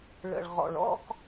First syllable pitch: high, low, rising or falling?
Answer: low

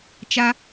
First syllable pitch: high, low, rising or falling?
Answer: high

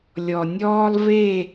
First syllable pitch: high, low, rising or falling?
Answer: low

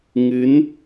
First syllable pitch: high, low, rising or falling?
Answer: rising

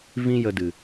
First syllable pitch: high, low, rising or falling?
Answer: high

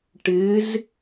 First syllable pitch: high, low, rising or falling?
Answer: rising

